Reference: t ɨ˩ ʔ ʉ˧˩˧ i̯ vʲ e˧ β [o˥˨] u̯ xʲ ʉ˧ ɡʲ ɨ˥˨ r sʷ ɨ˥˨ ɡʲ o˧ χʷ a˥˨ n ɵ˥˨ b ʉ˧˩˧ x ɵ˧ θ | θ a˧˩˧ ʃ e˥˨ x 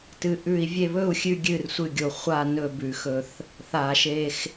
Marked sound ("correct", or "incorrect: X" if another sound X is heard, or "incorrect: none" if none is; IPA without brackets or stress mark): incorrect: ɵ˥˨